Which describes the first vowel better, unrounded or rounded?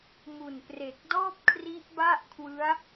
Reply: rounded